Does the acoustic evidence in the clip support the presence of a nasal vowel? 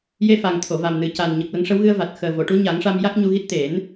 no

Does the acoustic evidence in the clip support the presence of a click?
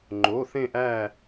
yes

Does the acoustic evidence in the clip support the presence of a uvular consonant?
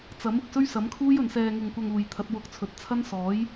no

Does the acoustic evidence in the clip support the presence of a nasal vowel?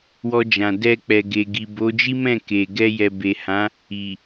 yes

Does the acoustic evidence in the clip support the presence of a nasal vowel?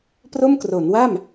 no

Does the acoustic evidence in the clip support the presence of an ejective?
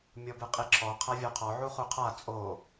yes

